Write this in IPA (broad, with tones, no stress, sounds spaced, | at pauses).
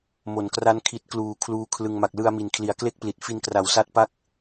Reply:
m o˩˦ n k r a˦˥ n kʰ i˦˥ t̚ k l uː˧ kʰ l uː˦˥ kʰ l ɯ˧ ŋ m a˨˩ k̚ l ɯ˧ a̯ m i˨˩ n kʰ l i˨˩ a̯ k l e˥˩ k̚ p l i˨˩ t̚ f i˧ n k r a˨˩ w s a˦˥ t̚ p a˥˩ k̚